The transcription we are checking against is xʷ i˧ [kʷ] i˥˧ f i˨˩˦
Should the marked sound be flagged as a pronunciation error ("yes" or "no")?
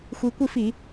no